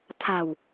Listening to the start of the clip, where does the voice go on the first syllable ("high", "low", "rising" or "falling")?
low